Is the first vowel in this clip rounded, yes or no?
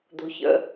yes